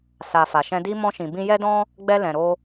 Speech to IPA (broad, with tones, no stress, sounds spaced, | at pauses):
s a˨ f a˨ ʃ ɛ̃˧ d i˦ m ɔ̃˧ ʃ ĩ˨ b ĩ˧ j ɛ˧ d ɔ̃˧ | ɡ͡b ɛ˧ l ɛ̃˨ ɾ o˧